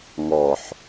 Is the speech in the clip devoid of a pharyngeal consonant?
no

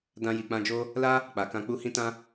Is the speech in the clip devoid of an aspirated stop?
yes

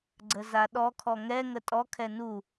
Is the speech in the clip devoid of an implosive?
no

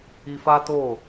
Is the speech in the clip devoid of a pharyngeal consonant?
yes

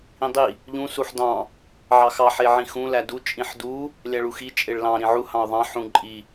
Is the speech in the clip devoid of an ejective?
no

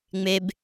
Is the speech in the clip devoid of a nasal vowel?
yes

